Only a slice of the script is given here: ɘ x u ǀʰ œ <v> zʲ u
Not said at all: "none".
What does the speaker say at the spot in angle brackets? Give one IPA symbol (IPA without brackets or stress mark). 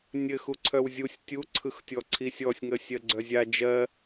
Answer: w